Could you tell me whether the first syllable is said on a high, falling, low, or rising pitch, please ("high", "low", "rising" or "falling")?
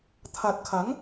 low